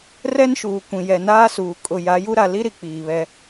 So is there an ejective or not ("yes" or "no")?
yes